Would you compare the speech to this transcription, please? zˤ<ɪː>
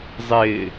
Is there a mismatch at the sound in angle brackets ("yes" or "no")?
no